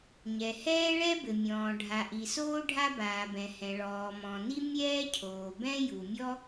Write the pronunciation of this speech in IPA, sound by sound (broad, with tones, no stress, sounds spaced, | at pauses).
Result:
ɲ ɛ˩ h ɛː˥ ɭ ɛ˥ b ɘ˩ mʲ ɔ̃ː˩ ɖʱ a˩ ʔ i˩ s oː˥ ɖʱ a˥ b aː˩ b ɛ̃˩ h ɛ̃˩ ɭ ɔː˩ m ɔ̃˩ n i˥ mʲ ɛː˥ cʰ oː˩ b ɛ̃˥ j u˩ mʲ ɔ˥